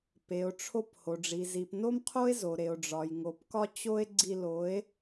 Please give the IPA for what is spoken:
p e˨ o̯ ʈ͡ʂʰ o˧ p h o˨ ɖ͡ʐ i˨ z i˨ p n o˦ m qʰ o˦ e̯ z o˨ ɾ e˨ o̯ ɖ͡ʐ ɒ˨ j ŋ o˨ p k ɒ˦ t͡ɕ o˦ e̯ ɡ͡ǀ i˧ l o˨˦ e̯

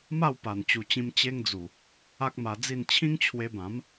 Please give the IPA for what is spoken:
m a˥˧ w p a˨˩ n t͡ɕ u˨˩ t͡ɕ ĩ˧ m t͡ɕ e˦ ŋ d͡z u˨˩ | a˦ k̚ m a˧ d͡z i˥˧ n t͡ɕʰ ĩ˦ ŋ t͡ɕʰ w e˧ b ã˨˦ m

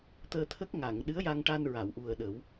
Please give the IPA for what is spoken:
t̪ əː˧ t̪ʰ ə˦˥ k̚ ŋ a˨˩˨ ŋ ɗ ɨ˧˥ ə̯ j a˧ ŋ ʈ a˧ n ɹ a˨˩˨ w ʔ u˨˩ ə̯ ɗ ə˨˩˦ w

